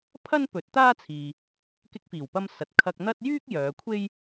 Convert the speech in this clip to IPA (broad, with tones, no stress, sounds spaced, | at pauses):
pʰ ɐ˥ n p ɵ˨˥ t̚ t̪ aː˥ t͡sʰ iː˨ | k ɪ˧ k̚ f iː˨˩ w p ɐ˧ m s ɐ˨ t̚ kʰ ɐ˧ k̚ n̪ ɐ˥ t̚ j yː˥ k̚ j œː˨˧ kʷʰ e˥ j